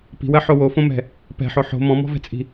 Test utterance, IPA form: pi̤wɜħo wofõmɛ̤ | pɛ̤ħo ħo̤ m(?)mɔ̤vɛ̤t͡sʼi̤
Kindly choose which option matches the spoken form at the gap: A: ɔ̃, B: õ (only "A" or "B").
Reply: A